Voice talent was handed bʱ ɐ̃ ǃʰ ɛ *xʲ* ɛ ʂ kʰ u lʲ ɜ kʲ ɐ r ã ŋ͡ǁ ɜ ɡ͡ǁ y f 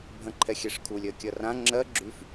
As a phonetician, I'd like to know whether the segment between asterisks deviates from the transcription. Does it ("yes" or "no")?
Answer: no